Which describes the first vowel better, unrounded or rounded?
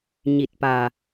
unrounded